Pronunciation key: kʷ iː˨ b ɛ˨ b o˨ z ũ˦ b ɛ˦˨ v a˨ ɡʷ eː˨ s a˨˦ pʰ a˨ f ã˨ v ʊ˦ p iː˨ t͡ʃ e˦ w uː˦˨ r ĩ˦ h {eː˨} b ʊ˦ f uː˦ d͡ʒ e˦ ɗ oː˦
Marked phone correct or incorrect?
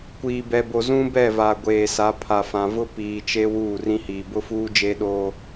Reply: incorrect: iː˨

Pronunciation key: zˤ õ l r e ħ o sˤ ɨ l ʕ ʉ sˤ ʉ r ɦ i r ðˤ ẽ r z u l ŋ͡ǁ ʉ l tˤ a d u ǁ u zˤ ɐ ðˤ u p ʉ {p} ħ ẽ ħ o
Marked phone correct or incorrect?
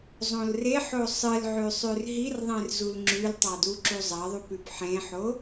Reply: correct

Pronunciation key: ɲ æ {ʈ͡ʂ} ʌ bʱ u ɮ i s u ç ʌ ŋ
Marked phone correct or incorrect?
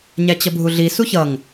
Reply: incorrect: t͡ɕ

